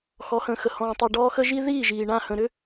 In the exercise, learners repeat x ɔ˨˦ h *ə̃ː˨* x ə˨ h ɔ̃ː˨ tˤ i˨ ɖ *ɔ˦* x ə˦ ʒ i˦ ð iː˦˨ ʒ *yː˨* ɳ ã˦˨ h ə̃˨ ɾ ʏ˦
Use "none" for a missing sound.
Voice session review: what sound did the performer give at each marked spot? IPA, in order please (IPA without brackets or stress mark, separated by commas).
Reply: ə̃ː˨, ɔː˦, iː˨